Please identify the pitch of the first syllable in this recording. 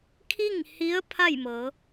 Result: falling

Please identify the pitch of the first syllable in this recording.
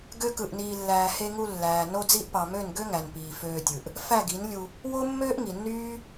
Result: high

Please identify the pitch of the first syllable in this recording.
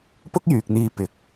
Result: high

